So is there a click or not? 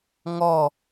no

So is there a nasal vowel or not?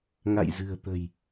no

